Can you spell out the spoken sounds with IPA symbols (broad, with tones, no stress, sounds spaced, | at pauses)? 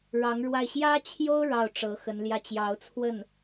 ɻ ɑ˧˥ ŋ ɻ w a˥˩ ɪ̯ ɕ j ä˥ t͡ɕʰ j o˥ ʊ̯ ɻ ɑ˥˩ ʊ̯ ʈ͡ʂ ɤ˧˥ x ə˧˥ n l j ä˥˩ t͡ɕ j ɑ˧˥ ʊ̯ t͡sʰ w ə˥˩ n